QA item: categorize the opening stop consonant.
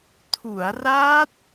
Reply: aspirated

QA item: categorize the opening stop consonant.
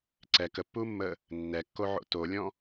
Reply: click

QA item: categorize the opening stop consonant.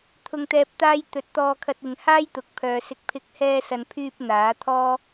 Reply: aspirated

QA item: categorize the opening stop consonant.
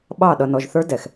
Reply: implosive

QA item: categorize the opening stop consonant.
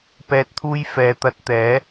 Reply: plain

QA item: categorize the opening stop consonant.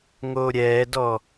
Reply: plain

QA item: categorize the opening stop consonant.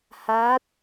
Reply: plain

